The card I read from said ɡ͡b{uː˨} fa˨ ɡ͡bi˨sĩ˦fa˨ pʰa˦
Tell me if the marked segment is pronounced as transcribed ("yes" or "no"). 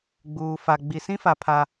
yes